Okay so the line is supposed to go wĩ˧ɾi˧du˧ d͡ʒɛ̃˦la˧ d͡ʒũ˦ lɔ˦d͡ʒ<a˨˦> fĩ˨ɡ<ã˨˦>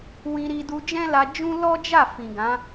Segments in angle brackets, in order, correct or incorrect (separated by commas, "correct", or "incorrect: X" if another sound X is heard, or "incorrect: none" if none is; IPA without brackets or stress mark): incorrect: a˦˨, correct